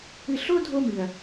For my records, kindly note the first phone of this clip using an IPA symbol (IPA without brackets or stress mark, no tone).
ɨ